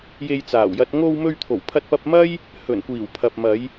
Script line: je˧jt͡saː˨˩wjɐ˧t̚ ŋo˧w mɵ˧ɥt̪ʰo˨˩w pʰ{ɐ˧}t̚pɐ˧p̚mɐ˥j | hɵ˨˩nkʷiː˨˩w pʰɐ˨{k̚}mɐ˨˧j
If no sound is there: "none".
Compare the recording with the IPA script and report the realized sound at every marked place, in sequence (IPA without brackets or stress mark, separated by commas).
ɐ˧, p̚